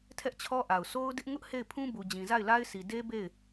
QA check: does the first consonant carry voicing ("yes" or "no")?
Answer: no